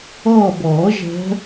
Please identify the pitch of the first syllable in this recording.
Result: falling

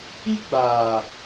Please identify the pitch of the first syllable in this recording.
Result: high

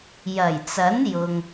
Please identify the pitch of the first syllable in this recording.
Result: low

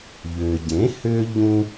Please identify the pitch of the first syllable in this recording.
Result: low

